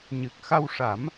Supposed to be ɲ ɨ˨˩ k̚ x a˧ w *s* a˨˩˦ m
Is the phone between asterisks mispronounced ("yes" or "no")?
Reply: yes